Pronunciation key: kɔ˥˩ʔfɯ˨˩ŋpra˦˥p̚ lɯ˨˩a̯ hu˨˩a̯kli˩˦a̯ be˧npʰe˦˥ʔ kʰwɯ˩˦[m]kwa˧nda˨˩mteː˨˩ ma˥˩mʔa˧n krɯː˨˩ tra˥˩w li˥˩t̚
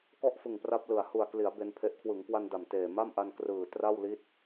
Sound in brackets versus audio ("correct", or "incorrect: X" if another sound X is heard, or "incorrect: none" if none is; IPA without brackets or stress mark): incorrect: ŋ